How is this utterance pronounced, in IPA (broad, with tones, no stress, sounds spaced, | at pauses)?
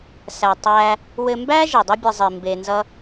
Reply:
s æ˧ tˤ æ˦ | w ɘ˧ m b æ˦ ʒ e˨ dˤ ʌ˦ bʲ ɘ˧ zˤ i˨ m b e˧ n z ʌ˦